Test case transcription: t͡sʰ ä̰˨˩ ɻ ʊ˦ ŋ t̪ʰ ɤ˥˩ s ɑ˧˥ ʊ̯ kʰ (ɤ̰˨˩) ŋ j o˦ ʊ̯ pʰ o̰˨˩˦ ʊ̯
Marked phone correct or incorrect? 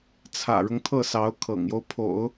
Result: correct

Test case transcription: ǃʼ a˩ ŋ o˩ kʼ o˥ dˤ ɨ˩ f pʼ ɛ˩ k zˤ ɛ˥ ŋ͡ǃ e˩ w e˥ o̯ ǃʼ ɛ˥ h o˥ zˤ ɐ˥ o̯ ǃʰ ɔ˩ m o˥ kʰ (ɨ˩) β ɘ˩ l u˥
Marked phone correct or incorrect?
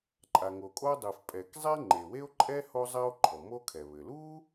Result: incorrect: ɛ˩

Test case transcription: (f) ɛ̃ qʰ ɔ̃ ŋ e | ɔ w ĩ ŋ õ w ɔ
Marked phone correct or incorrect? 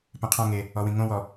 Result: incorrect: p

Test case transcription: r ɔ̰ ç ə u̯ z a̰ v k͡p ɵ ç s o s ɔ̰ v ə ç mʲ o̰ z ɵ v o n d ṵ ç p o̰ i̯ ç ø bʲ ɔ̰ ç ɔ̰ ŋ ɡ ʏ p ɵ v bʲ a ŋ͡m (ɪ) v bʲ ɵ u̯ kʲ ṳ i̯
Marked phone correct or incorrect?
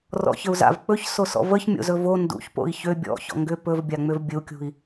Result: incorrect: ʏ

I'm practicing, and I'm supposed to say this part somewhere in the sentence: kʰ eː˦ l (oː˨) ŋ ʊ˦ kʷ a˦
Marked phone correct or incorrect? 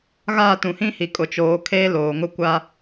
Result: correct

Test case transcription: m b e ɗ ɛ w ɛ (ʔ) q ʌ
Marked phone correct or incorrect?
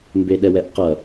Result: correct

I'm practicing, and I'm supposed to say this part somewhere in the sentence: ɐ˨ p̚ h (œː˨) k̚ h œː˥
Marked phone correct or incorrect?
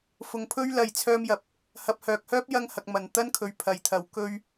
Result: correct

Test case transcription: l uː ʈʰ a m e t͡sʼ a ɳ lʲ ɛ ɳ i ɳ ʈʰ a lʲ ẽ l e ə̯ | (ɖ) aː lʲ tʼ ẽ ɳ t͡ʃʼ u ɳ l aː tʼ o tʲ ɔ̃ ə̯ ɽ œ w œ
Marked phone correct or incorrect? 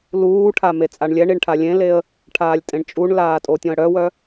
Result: incorrect: ʈʰ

